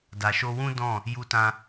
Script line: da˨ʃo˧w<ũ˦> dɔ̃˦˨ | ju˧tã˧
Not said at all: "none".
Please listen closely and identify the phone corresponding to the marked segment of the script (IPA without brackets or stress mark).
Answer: ũ˦